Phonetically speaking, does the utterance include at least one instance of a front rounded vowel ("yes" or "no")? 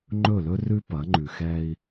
no